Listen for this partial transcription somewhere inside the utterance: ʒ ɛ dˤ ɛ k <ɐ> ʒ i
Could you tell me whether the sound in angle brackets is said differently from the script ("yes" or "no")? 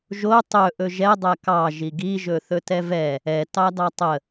yes